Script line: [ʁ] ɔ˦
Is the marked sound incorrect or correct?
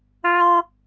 incorrect